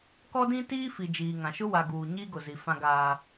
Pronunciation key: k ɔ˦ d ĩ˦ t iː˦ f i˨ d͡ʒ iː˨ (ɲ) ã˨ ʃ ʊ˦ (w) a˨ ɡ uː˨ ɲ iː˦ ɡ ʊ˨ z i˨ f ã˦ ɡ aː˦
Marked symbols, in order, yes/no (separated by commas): no, yes